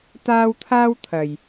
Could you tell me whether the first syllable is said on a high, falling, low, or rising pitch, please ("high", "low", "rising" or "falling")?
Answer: high